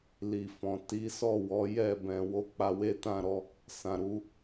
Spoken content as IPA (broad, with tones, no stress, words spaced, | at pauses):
li˨fɔ̃˨ ti˨˦sɔ˦˨ wɔ˨˦jɛ˦˨ bɛ̃˨wo˧ k͡pa˧we˦tã˦˨ɾɔ˨˦ | sã˨ ɾu˧